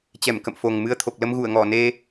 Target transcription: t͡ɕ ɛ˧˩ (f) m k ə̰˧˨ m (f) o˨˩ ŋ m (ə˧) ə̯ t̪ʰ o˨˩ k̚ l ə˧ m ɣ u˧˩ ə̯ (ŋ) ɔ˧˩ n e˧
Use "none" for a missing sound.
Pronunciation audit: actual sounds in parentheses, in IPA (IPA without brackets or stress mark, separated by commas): none, f, ɨ˧, ŋ